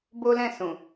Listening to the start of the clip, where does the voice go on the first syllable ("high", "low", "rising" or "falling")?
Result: high